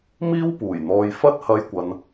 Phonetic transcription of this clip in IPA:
miː˥wpuː˨˩jn̪ɔː˨˧j fɐ˥t̚hɐ˧jkʷɐ˨n

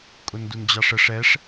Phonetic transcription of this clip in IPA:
kʼʊndund͡ʑɑʂəʂ ɛʂ

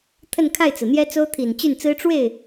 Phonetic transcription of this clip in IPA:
t̪ʰə˥˧nkʰa˥˩ɪ̯t͡sɹ̩˩n̪jɛ˥ t͡so˥ʊ̯t̪ʰi˨˩nt͡ɕy˥˩nt͡sɹ̩˥ ʈ͡ʂwe˥˩ɪ̯

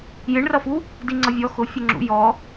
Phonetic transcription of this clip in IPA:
jɪɳrʌfu | diŋ͡ǀʌvʲɔ xʊ fʲəŋ͡ǁṵ jɔ

